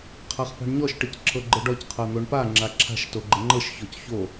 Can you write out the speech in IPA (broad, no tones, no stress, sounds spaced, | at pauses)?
qʰ a χ p a̤ ɳ ɲ ɔ ʃ ʈ ɘ c ǁʰ ɤ ɡ͡ǃ ɘ ɖ ɔ c qʰ ɤ n̪ o ɳ p a ŋ͡ǁ a ǁʰ a̤ ʃ t o ɡ͡ǃ ə ŋ͡ǃ ɤ ʃ ç ɔ c ç o